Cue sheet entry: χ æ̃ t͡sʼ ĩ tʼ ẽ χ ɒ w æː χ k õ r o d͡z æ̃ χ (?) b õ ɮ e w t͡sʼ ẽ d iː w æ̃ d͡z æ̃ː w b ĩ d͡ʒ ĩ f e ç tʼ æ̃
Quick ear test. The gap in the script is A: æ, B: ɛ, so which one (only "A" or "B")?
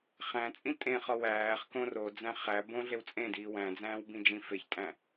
A